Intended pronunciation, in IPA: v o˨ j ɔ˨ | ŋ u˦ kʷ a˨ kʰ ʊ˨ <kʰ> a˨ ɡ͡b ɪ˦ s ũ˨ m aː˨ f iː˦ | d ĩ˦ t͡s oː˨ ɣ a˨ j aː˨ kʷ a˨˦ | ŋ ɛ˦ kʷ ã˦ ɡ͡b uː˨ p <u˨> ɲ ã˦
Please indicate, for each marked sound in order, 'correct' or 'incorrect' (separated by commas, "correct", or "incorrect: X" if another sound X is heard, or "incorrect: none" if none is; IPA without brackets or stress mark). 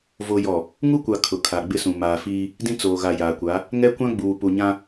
correct, correct